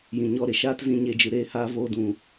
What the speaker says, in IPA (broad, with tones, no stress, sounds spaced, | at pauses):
j ĩ˨ ɲ ɔ˧ ɾ e˨ ʃ aː˦ t z ĩ˧ ɲ e˧ d͡ʒ ɨ˨ ɾ eː˧ h aː˧ v oː˧ d ũ˨